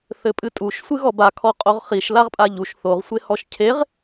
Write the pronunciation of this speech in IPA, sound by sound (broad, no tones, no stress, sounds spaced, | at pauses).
θ ɘ pʼ ɨ tʼ u ʃ sʷ ɨ ɣ ɔ b a kʰ ɔ qʼ o ʁ χ i ʃ l a ʁ pʼ a ʎ u ʃ θ o ʁ sʷ e h ɔ ʃ cʰ e ʁ